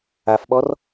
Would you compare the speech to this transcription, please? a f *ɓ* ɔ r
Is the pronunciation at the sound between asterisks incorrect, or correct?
correct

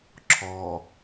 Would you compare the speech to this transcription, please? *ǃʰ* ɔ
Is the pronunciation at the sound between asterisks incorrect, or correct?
incorrect: ǁʰ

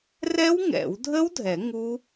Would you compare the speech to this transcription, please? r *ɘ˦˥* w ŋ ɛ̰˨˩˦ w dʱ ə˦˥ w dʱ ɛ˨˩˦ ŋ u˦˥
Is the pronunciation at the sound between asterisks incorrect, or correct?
incorrect: ɛ˦˥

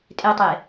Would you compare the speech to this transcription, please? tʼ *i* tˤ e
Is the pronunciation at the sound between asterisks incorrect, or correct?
incorrect: e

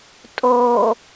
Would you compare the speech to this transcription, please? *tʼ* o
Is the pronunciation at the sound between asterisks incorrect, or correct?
correct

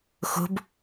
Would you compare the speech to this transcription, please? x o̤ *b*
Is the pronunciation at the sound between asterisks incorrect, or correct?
correct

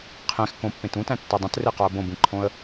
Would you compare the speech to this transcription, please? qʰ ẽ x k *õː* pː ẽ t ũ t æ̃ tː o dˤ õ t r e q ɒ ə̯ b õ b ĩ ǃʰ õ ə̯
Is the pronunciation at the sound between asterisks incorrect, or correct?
incorrect: õ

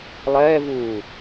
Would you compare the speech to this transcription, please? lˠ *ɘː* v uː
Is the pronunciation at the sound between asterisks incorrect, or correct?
incorrect: ɛː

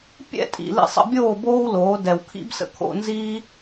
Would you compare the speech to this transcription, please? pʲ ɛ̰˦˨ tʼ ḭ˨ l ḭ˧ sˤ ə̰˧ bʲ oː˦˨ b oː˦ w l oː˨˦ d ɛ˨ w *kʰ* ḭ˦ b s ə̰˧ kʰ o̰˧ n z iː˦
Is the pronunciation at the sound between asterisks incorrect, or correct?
correct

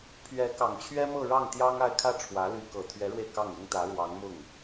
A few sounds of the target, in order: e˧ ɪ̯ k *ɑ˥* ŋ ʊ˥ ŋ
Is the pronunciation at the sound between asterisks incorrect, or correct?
incorrect: ɑ˥˩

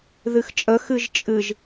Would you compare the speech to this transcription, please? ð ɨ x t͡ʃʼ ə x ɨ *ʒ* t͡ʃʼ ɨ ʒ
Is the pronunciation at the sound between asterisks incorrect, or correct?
correct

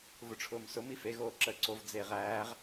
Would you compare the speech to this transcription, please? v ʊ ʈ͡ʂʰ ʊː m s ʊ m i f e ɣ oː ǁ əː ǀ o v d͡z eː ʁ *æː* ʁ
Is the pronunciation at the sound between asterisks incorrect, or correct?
correct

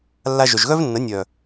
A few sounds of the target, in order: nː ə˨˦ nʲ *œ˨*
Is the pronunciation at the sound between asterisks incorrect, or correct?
correct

